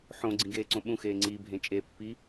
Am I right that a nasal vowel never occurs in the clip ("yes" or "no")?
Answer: no